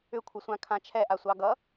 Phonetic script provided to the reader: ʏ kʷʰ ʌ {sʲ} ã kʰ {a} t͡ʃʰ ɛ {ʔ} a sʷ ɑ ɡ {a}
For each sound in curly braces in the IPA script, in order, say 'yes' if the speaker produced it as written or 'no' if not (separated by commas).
no, no, yes, no